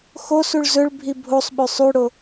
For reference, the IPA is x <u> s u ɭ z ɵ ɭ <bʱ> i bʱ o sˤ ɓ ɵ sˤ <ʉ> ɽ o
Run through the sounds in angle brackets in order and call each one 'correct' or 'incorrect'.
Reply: incorrect: o, correct, correct

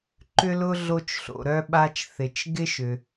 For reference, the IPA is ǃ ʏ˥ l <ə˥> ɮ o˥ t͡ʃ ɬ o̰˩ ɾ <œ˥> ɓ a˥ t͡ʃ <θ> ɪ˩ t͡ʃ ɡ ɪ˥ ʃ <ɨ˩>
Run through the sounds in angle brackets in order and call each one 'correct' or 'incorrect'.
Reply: incorrect: ʊ˥, correct, correct, incorrect: ʏ˩

